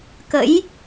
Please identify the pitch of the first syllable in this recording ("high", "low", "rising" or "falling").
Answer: rising